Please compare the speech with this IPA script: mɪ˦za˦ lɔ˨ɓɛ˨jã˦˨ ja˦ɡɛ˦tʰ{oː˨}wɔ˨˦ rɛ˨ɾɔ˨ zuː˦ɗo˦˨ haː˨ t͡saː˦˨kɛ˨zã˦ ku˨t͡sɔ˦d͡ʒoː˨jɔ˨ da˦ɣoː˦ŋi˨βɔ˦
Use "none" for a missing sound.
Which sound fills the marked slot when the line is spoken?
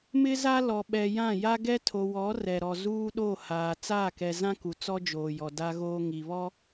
o˨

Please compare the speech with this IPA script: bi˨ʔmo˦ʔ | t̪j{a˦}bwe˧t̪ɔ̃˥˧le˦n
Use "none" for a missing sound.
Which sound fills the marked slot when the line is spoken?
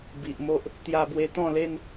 a˧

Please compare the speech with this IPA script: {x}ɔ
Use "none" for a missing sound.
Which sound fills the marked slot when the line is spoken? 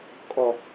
kʼ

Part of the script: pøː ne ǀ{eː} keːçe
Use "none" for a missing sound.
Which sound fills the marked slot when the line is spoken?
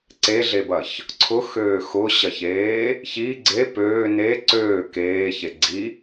øː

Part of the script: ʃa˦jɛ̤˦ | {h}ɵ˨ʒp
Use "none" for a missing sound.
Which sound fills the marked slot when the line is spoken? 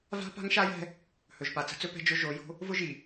h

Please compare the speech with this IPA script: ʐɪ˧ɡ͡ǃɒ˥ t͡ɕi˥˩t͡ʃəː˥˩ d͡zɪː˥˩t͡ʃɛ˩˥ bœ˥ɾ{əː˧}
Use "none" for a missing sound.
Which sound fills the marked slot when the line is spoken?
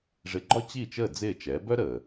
əː˩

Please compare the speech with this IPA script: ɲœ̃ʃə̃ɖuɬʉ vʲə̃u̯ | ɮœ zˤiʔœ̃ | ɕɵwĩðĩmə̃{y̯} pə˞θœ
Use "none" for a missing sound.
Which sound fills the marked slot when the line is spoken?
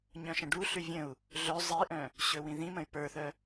y̯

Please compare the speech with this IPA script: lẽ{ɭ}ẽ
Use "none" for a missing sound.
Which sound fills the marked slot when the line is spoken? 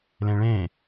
ɭ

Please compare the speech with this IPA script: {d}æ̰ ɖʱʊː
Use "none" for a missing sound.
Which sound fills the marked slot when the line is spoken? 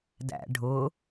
d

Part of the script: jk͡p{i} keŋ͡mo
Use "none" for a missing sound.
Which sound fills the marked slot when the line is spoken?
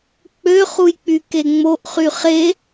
y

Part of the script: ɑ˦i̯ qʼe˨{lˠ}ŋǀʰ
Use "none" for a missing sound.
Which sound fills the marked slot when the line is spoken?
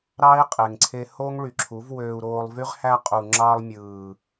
none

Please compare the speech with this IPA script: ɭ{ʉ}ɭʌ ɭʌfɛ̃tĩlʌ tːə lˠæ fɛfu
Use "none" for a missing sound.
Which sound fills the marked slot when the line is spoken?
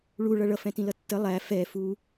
u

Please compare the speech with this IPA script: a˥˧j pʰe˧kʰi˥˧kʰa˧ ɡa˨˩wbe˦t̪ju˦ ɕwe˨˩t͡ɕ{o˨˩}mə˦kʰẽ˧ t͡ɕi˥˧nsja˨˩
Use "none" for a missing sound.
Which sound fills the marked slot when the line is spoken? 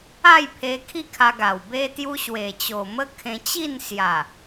o˨˩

